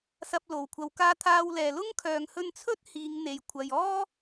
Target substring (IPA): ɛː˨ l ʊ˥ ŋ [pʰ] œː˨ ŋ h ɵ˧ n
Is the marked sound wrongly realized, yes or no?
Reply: yes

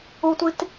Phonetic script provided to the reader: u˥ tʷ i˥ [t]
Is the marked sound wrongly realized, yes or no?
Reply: no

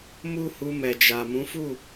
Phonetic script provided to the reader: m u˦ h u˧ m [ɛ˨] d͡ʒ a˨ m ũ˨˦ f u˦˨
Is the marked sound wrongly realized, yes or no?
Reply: no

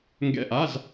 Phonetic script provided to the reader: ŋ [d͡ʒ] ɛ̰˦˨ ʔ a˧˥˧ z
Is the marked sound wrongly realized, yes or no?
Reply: yes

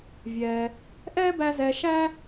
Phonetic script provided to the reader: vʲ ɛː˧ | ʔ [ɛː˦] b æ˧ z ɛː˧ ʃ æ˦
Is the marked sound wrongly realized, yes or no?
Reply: no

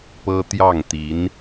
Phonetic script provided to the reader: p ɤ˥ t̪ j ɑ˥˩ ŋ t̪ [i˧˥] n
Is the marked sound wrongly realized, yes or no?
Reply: no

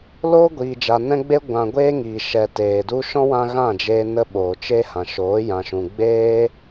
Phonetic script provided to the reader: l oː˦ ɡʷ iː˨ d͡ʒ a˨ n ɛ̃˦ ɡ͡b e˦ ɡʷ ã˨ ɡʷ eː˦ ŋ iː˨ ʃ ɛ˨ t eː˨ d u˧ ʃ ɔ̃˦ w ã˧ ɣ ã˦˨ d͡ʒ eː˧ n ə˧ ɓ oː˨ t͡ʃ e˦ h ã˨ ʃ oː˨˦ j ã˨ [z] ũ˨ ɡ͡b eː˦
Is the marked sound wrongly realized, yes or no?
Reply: yes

